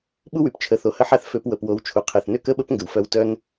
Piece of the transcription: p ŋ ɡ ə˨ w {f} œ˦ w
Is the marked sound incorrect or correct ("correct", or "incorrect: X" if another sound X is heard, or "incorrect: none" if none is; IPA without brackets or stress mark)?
correct